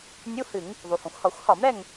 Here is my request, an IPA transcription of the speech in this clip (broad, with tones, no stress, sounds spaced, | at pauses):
nʲ u˧˥˧ h ɨ˧˩˧ ŋ | ðˤ u˩ h õ˩ xʷ h ɒ˧˩˧ xʷ h ɒ˧˩˧ m ɾ ɛ˦˨ ŋ